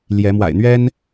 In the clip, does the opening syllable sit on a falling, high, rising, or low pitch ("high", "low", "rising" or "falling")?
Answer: rising